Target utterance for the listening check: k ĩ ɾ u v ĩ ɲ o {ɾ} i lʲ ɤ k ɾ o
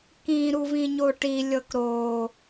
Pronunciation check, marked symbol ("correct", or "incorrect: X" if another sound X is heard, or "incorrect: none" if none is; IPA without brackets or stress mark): incorrect: ʈ